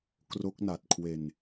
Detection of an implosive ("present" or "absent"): absent